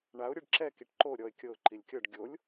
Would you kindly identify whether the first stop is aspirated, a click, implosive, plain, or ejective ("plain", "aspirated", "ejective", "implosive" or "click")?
plain